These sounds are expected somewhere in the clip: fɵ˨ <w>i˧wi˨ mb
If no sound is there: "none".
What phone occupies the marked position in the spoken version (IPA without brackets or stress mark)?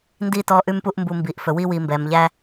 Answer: w